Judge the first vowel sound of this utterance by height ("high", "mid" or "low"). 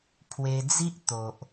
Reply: mid